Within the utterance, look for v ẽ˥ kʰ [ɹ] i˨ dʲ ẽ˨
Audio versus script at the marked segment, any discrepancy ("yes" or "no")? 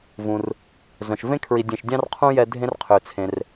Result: no